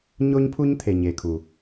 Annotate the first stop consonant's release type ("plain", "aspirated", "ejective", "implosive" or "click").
aspirated